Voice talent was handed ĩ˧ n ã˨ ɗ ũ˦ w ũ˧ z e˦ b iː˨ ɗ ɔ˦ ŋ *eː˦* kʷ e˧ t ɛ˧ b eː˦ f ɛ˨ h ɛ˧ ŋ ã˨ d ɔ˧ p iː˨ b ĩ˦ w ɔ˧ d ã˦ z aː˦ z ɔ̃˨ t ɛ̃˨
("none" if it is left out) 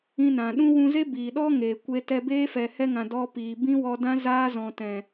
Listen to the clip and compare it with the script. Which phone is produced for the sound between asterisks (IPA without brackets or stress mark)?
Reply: eː˨